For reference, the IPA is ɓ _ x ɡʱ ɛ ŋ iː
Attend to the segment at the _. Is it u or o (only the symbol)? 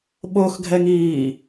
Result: o